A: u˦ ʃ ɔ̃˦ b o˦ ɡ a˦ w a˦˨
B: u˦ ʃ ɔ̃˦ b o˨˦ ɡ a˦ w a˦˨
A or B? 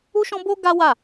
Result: A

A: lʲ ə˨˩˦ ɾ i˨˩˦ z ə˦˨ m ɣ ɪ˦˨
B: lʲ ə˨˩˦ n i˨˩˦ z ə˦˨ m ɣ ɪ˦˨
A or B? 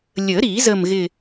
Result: A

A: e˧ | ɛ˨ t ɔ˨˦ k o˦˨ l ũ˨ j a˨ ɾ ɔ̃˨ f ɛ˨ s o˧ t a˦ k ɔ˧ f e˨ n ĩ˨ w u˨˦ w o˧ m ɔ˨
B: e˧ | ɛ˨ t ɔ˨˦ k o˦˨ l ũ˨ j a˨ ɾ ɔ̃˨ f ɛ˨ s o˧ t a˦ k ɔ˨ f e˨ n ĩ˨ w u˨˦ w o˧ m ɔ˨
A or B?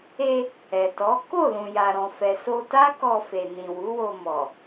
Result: A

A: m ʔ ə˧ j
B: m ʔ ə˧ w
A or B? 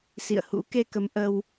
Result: B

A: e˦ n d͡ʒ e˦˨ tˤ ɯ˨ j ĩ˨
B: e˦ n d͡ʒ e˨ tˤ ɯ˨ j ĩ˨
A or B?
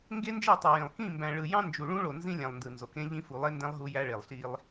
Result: A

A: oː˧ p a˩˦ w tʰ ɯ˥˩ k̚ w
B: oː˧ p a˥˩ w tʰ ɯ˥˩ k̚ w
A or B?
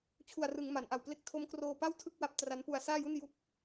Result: B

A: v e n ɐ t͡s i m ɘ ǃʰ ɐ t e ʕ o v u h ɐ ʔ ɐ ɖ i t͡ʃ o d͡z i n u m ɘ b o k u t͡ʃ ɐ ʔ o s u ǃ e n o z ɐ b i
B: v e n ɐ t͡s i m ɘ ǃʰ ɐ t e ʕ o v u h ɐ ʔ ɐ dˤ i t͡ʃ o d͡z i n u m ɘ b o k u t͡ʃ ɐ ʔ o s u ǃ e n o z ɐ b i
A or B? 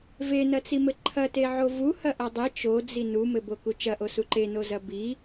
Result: B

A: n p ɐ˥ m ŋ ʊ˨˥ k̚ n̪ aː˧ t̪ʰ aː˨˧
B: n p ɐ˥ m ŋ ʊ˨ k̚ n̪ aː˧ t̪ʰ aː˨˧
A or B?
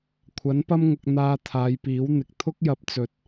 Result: B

